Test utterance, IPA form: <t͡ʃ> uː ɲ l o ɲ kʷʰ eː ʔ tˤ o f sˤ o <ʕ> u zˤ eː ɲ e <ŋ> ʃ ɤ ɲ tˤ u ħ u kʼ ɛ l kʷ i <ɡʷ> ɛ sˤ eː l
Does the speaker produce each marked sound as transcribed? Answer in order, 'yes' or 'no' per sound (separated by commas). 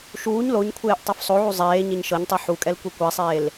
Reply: no, yes, no, no